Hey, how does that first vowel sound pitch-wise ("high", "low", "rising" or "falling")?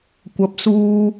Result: low